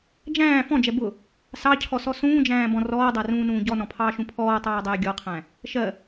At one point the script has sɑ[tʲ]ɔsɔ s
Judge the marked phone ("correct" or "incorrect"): incorrect